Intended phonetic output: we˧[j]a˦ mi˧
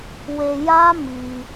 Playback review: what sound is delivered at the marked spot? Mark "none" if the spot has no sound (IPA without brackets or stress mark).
j